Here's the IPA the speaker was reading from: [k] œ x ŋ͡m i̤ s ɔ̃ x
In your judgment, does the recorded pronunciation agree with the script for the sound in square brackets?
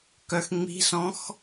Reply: yes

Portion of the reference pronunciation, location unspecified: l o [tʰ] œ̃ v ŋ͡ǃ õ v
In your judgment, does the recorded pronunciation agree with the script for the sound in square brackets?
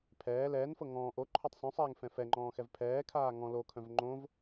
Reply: no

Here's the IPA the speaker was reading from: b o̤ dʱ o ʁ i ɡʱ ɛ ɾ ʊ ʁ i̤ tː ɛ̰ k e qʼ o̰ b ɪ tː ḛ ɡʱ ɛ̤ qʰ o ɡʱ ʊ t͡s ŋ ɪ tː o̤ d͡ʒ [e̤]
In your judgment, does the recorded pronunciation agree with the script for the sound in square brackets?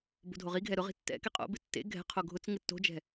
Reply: no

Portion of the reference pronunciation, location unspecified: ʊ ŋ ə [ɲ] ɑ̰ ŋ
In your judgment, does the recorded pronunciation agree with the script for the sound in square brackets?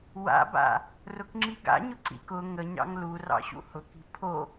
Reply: yes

